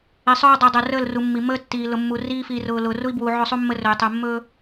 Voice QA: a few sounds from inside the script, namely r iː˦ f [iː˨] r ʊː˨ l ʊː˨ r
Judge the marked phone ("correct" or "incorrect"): correct